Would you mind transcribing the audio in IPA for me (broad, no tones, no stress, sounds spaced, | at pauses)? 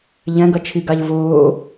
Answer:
ʎ ɛ̃ ɡ ɐ t͡ʃʰ i ɡ a ʎ v ʊː